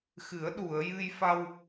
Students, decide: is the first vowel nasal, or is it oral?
oral